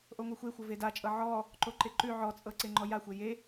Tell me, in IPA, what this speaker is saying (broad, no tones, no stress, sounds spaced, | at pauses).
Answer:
ʔ o ŋʷ e xʷ e xʷ ɤ v e d a t͡ʃʼ ɤ ʕ ɔ | ǃ o ǃ e ǃ ʉ ʕ ɔ t͡sʼ ɤ ǀ e ŋ͡ǃ ɔ j a xʷ e j e